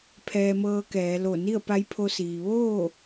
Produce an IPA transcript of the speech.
pʰ ɛː˧ m ɤː˧ k ɛː˩˧ l o˧˩ n i˥˨ ə̯ p a˧˥ j pʰ o˧ s iː˩ ʋ oː˥˨

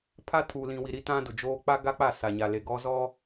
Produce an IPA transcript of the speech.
pʰ a˦ tʰ uː˨ l ĩ˨ w i˨ ɾ i˦ t ã˦ d ʊ˨ d͡ʒ oː˦ k͡p a˦ ɡ a˦ k͡p a˦˨ s a˨ ɲ a˨ l e˨ ɡ ɔ˦ z ɔ˦

